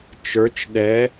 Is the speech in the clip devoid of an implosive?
no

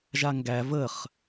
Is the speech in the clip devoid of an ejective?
yes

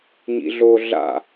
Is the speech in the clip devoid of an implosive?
yes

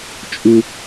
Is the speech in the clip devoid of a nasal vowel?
yes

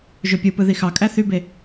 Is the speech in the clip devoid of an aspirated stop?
yes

